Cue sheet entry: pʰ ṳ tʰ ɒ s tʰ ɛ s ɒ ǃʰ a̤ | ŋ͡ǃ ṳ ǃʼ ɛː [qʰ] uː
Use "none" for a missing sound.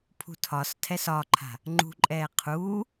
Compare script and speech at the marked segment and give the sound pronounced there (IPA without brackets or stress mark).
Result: qʰ